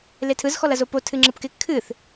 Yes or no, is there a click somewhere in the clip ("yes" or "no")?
yes